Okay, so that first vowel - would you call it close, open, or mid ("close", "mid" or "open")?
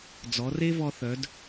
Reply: mid